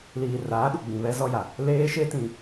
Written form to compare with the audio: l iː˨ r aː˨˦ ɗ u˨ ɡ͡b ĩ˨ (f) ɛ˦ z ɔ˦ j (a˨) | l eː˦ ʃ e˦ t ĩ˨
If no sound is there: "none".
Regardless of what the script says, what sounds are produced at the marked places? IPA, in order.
β, a˨

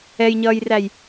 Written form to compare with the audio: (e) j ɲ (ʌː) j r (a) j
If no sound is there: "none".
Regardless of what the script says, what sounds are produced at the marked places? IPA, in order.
ɛ, ʌː, æ

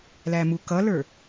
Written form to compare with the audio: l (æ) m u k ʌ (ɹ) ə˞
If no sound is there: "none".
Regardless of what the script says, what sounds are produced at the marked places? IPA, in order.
æ, l

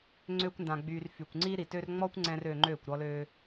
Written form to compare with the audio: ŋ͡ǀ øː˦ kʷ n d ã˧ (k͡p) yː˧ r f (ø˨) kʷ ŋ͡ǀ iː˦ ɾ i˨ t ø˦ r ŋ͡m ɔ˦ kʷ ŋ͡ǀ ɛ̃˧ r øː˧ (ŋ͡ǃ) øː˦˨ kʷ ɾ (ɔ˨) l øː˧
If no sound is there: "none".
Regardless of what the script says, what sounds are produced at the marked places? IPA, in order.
ɡ͡b, y˨, ŋ͡ǃ, ɔ˧

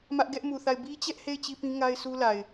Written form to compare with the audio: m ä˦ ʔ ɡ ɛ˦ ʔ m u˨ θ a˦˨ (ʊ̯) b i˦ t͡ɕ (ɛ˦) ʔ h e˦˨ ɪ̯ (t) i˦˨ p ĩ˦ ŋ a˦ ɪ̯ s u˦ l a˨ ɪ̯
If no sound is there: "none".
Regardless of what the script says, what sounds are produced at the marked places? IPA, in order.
ɪ̯, ɛ˦, t͡ɕ

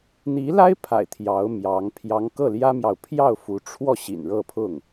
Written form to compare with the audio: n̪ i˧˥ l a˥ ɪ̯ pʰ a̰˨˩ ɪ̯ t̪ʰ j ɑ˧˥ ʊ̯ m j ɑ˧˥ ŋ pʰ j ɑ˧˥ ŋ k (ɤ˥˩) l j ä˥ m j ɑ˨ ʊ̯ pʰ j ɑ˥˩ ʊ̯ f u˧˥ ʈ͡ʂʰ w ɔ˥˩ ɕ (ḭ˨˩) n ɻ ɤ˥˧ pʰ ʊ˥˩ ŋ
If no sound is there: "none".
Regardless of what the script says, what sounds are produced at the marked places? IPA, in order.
ɤ˥˩, ḭ˨˩

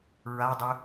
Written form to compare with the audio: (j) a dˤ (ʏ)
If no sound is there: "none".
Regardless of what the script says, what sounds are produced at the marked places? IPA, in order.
ɹ, ʏ

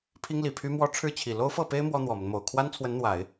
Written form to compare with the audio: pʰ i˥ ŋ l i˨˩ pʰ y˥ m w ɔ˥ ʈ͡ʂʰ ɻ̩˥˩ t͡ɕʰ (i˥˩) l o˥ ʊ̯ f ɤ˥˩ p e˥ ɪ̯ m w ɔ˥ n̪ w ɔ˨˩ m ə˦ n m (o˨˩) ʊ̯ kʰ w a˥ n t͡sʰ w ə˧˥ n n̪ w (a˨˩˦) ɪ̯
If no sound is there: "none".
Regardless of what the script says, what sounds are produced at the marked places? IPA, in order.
i˨˩, o˨˩, a˨˩˦

